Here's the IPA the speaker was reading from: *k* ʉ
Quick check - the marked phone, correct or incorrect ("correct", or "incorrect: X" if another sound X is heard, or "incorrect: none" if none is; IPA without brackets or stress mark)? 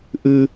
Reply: incorrect: ʔ